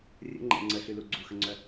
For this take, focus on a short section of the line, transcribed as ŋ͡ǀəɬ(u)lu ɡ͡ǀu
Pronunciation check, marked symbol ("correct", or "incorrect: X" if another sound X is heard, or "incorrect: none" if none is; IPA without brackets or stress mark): incorrect: y